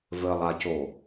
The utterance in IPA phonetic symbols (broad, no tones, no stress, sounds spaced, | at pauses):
v ɘ lˠ a c o